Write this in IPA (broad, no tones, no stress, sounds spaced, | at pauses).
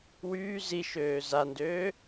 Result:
w yː z i ʃ øː z a n d øː